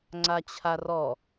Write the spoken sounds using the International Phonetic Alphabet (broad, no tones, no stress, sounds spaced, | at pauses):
ŋ͡ǀ a t͡ɕʰ a r ɔ